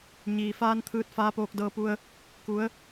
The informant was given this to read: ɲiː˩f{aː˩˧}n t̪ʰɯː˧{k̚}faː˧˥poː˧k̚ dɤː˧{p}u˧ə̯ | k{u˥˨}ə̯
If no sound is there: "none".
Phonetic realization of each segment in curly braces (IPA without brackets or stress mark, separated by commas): aː˧, t̚, p, u˩˧